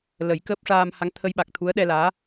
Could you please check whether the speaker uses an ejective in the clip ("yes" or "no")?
no